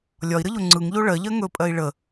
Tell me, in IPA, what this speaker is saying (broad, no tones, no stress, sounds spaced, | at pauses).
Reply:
lʲ ɒ i̯ ɾ ə ʎ o ŋ͡ǀ ɯ ŋ ʎ o ɭ ɜ ʎ ɜ ŋ ɵ pʼ ɜ i̯ ɭ ə